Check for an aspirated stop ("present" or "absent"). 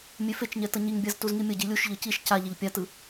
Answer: absent